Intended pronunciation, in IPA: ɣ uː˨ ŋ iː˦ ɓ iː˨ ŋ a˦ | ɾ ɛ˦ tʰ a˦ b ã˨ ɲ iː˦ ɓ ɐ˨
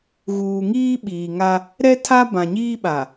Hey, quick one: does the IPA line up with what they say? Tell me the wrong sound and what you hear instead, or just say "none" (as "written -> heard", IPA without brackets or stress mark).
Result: ɐ˨ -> a˨